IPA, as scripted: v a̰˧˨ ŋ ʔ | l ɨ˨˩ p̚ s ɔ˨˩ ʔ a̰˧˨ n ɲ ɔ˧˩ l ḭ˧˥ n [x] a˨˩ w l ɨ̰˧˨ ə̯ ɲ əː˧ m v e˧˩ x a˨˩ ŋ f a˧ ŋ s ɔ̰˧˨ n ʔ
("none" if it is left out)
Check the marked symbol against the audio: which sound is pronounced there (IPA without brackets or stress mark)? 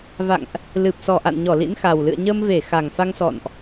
x